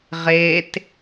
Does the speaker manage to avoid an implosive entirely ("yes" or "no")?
yes